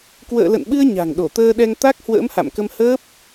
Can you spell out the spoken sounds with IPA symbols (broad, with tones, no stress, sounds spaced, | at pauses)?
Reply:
k w ə̰ː˧˨ l ə̰˧˨ n ɓ ɨ˧ ə̯ ɲ a̤˨˩ ŋ ɗ o˧˩ t̪ əː˧ ɗ ɛ˧ ŋ t̪ a˦˥ k̚ h w ə̰ː˧˥ m h a̰˧˨ m k ə˧ m h əː˦˥ p̚